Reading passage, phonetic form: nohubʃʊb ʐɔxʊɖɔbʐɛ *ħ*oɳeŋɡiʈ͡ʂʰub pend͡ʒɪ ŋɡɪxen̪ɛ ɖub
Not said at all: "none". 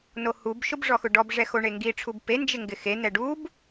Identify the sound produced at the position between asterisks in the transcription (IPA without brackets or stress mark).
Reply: x